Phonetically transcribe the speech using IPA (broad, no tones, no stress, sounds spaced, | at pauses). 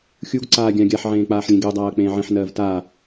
xʲ u ɡ ǀ aː ɡʲ ã ɡʲ a ħ ʕ ẽː k͡p aː ħ lʲ ẽ ɡ e dˤ aː ɐ̯ k͡p ẽː ʕ ẽ ħ n ɜː v t a